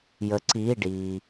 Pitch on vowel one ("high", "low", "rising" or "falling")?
rising